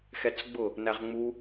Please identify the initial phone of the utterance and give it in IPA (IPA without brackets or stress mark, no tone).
x